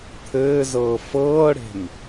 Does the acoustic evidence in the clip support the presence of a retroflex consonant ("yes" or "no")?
yes